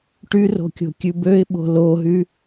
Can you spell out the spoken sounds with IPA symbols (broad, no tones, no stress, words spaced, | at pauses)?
ʈyro̤kʲo̤ kʲʉbøɪ̯ɓo̤ loɦy